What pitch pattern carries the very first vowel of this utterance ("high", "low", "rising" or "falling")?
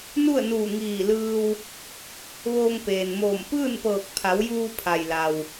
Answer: falling